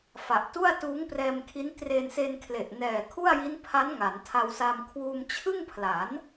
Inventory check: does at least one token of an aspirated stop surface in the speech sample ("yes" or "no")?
yes